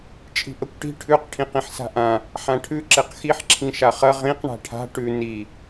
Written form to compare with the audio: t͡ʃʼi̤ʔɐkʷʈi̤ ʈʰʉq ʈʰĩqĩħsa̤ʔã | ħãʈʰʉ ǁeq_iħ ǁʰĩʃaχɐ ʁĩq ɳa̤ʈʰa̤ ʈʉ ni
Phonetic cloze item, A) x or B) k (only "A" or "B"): A